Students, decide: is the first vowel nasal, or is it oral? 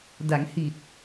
oral